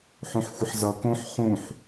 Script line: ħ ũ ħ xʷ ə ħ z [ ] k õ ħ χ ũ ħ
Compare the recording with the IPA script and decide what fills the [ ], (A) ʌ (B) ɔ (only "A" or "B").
A